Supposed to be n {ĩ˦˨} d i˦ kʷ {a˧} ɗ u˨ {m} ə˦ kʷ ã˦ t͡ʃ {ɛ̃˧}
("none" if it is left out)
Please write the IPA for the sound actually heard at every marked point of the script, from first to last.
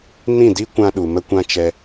ĩ˦˨, ã˧, m, ɛ˧

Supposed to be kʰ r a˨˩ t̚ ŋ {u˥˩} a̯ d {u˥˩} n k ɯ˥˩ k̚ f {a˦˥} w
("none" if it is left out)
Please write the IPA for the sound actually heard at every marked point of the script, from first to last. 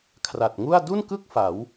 u˥˩, u˥˩, a˩˦

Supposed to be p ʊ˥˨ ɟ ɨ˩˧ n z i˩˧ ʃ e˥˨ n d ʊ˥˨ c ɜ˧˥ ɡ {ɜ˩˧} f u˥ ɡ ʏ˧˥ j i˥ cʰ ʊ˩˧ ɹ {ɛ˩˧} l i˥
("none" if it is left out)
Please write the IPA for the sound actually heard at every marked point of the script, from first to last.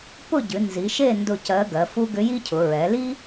ɜ˩˧, ɛ˩˧

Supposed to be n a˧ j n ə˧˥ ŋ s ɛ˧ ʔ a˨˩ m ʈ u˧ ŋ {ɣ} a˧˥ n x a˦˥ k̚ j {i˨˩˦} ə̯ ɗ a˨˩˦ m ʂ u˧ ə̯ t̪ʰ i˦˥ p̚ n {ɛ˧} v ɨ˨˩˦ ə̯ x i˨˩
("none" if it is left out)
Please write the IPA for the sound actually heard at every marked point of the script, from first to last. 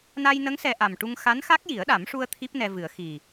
x, i˨˩˦, ɛ˧

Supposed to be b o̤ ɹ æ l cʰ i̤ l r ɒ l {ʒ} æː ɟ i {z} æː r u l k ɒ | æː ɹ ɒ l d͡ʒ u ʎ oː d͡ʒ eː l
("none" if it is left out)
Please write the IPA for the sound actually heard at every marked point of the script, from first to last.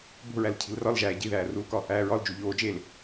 ʒ, ð

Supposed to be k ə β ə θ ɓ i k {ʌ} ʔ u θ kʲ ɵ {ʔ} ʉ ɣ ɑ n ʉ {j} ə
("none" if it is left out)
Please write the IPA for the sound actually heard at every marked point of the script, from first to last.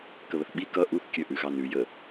ʌ, ʔ, j

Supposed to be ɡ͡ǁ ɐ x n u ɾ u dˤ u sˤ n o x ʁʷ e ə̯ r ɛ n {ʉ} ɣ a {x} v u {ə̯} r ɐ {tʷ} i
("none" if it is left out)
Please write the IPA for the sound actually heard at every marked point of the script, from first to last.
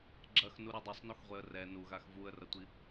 u, x, ə̯, tʷ

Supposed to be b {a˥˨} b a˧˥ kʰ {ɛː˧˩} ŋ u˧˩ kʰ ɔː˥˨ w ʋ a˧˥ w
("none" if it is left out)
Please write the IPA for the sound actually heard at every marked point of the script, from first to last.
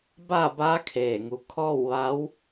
a˥˨, eː˧˩

